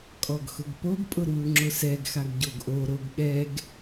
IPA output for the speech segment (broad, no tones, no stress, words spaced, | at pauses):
kʼɔɡxʊɡpoɡpʼʊ ɾuːŋ͡ǁʊsɛɡxaɡ ɟoɡʔoɾoɡ ɠɛɡ